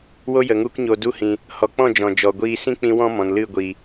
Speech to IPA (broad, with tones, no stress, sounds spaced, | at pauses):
w o˦ j ə˨ ŋ u˦ k ɲ o˧ d u˧ h ĩ˨ | h ɔ˨ k͡p ɔ̃˦˨ d͡ʒ ɔ̃˨ d͡ʒ ɔ˨ ɡʷ iː˧ s ĩ˦ k͡p ĩ˧ w ɔ̃˦ m ɔ̃˨ n l ɨ˦˨ ɡʷ iː˨